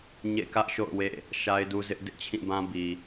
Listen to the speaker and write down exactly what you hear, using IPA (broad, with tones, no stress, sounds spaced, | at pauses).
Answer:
ɲ ḛ˦˨ k ä˦ ʔ ʃ o̰˦˨ ʊ̯ w ḛ˦˨ | ʃ a˦ ɪ̯ d u˦ z ɪ˦ ʔ d ɪ˦ ʔ t͡ɕʰ ĩ˦˨ b ã˦ b i˨